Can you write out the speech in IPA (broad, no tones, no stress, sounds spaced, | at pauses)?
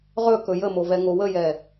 ʁ ɵ k ɵ j ə m o v ɛ ŋ o w ə j ɛ